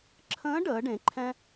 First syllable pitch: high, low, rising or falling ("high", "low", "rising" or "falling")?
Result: rising